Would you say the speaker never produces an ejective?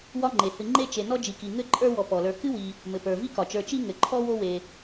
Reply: no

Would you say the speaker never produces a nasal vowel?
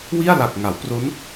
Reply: yes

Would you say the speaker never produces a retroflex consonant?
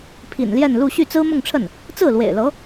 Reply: no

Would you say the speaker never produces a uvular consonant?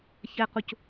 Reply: no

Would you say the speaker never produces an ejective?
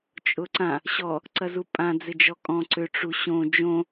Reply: no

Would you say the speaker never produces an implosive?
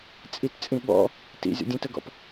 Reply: no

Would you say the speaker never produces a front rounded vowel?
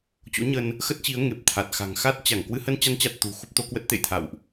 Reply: yes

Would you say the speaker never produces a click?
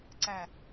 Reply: no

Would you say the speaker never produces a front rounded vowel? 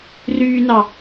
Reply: no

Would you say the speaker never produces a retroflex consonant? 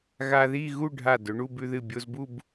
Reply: no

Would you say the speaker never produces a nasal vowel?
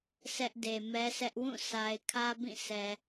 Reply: no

